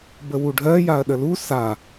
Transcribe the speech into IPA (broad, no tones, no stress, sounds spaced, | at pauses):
b ə w u ɖʱ ɜ j a ɐ̯ ɗ ə l u s a